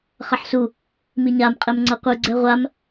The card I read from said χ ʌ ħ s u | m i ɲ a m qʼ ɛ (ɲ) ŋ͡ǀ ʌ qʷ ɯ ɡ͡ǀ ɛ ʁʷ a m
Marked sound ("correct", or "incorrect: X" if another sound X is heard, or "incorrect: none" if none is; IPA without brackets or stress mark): incorrect: m